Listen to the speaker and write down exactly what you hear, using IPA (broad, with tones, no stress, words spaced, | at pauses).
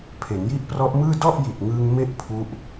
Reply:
pʰe˩˦nji˦˥ʔprɔ˦˥ʔmɯː˥˩ dɔ˥˩ʔji˨˩t̚ŋɯː˧ŋ me˥˩ʔpʰu˦˥ʔ